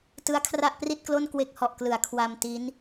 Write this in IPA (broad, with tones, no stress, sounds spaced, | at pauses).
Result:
t ɯ˦˥ a̯ kʰ r a˥˩ ʔ p r i˥˩ t̚ k l o˥˩ n k w e˦˥ k̚ h ɔ˨˩ ʔ k l ɯ˩˦ a̯ kʰ w a˧ m t i˦˥ n